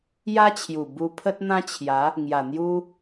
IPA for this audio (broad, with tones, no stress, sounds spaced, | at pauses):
j a˦ t͡ɕʰ j u˨˩ b u˧ pʰ ə˦ t̚ n̪ ã˦ t͡ɕʰ j a˨˦ | ŋ j a˨˩ n̪ j u˦